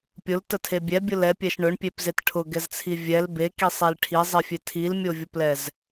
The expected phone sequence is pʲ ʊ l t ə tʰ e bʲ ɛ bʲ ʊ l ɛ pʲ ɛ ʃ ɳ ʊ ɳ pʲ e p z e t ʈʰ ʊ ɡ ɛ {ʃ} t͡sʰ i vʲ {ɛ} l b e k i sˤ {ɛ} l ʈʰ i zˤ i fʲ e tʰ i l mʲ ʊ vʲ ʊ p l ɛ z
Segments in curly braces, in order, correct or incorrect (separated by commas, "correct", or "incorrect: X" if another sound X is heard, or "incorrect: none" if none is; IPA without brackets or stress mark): incorrect: z, correct, incorrect: e